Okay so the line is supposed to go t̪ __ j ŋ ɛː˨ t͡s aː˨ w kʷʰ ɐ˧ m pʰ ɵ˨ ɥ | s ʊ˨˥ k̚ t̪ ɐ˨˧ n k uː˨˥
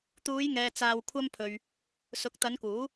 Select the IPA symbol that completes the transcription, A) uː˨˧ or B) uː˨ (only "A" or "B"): A